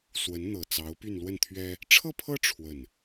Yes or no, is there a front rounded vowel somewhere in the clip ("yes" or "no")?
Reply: yes